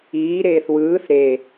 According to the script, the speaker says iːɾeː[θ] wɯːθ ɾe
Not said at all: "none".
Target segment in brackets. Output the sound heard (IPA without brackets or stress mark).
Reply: θ